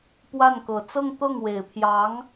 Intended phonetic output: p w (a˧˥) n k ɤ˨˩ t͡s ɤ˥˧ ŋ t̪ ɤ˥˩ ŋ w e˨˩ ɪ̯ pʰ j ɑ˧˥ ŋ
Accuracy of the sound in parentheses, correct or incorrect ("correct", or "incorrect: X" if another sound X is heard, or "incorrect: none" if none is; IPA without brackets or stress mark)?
incorrect: a˥˩